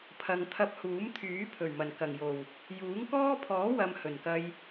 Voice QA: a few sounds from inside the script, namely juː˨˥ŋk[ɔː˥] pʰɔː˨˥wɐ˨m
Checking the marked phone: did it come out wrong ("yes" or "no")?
no